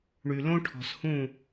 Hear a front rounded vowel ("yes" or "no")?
yes